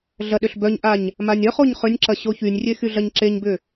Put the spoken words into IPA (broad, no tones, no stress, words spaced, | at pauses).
ɮɐɗʏɬbœɲʔaɲ | manʲœχoɲ χʏnʲǁɐ ɕoçynʲrʲe xyɮɐɲǁeɲbʏ